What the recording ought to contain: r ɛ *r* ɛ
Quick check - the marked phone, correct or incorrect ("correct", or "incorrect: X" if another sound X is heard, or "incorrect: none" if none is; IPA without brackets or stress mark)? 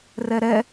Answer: incorrect: ɾ